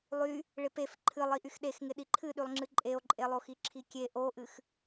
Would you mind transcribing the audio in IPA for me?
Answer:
lˠy | ɭɪpef ǃʰɨlˠi ʔyxɗexŋɪ ɗiǃʰɨɗylˠŋ͡ǁɨ ǃʼeo̯ǃʼelˠoxi ǁʰikʲe ʔoʔɨx

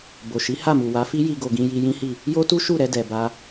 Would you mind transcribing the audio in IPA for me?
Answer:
bo˨ʃi˨˦ ha˦˨mu˨ wa˨˦fi˦ji˧ɡo˨ ɡĩ˧ji˧jĩ˦hi˦˨ | jo˦tu˦ ʃu˦˨ɾɛ˧dɛ˨ ba˧

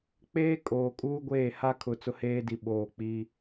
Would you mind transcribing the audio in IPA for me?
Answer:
k͡peː˦ kʼoː˨ kʼuː˦ɡʷeː˦˨ha˦kʰʊ˨ t͡sʊ˦heː˦di˨ ɓoː˨ k͡pi˦

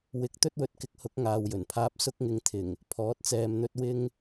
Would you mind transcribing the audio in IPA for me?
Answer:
wɪ˧k̚ t̪ɵ˥t̚wɵ˨˥t̚kɪ˨˥k̚hʊ˨˥k̚ ŋaː˨wjɵ˨˩npʰaː˧p̚ sʊ˧k̚ŋɪ˨ŋt̪ʰɪ˨˩ŋ | pʰɔː˨˥t̚t͡sɛː˧mn̪ɵ˥t̚ wɪ˥ŋ

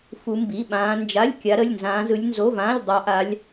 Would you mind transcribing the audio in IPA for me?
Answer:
fu˦˥mbi˧˥˧ɓãː˦˥ nd͡ʒa˧˥˧lʲ kʲa˦˥ɾə˧˥˧lʲnzãː˦˥zɯ˦˥lʲ nzo˧˥˧vãː˧˥˧lʲ dˤa˦˥ʔa˦˥lʲ

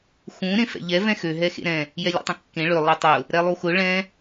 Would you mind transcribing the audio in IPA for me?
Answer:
xũ ɾẽfɛ̰ʎɛ vɛ̃xø ɦɛxḛɾɛ̃ | jɛlʲḛtˤɛ̃kːẽ ɭø lˠɯtˤʊ | ɾɛlˠuxʊ ɭɛ̃

